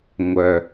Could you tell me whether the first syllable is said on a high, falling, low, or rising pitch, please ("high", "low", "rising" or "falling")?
low